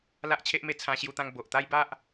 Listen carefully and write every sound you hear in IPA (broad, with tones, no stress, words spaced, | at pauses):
la˦ʔt͡ɕʰe˦ʔme˧ t͡sʰã˧ɕju˧t̪ã˧ŋ bo˨ʔ t̪a˦jba˦ʔ